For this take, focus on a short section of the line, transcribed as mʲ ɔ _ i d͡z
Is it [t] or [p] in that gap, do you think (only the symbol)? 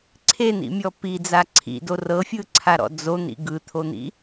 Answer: p